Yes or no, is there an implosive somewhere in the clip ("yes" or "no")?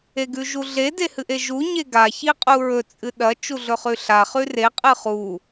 yes